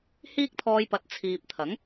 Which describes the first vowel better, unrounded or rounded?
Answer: unrounded